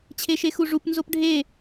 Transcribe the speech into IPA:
t͡ɕʰ e ʃ e x u ʐ u p n z o p ɖʱ e

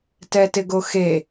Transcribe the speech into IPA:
t ɛ t ɪ ɡ o x e

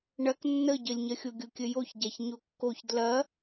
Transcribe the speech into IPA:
ɳ ɐ k nː ə ɟ ə lʲ ɲ ɐ xʲ o ɡʲ o kʲ ə j o ç ɟ a ç ɲ o kː o ç d l ɐ

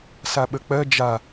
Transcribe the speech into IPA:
s a ɓ ə k͡p ɜ d͡ʒ a

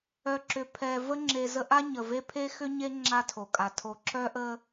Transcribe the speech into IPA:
œ˨ ǁ ʏ˨ pʰ ɛ˨ v ə˦ ŋ͡ǁ e˨ z ə˦ ʔ a˦ ɲ ə˨ v e˦ pʰ e˦ x ʏ˦ ɲ e˦ ŋ͡ǁ a˦ tʰ o˨ kʼ a˨ tʰ o˨ ǁ œ˦ ʔ ə˦

